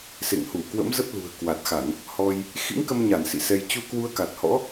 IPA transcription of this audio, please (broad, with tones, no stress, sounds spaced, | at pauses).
s ḛ˧˨ ŋ h u˧˩ k w ə̰˧˥ m z ə˦˥ p̚ l ṳ˨˩ ə̯ k w a˨˩ t̚ x a˧˩˨ n | h ɔ˧ j | x ḭ˧˥ ŋ k ə˧ m ɲ a˧˩ n s ḭ˧˨ s ɛ˧ j t͡ɕ u˧ k w u˧ ə̯ k a˨˩ t̚ h ɔ̰˧˥